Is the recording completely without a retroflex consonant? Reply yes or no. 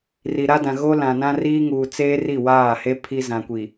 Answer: yes